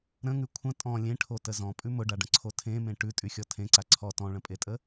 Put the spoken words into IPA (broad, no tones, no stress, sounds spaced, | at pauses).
ɾ ə̃ ŋ ʉ kʷʰ ə̃ tʼ ɔ̃ lʲ ẽ ʈʰ o t ə z ɔ̃ pʼ ʉ m ʊ ɖ a ɖ ə̃ ǀʰ o tʰ ẽ m ẽ ʈ ʉ tʼ y xʲ ɔ tʰ ẽ ǀ a ǀʰ ɔ t ɔ̃ ɭ ə̃ pʼ e tʼ ə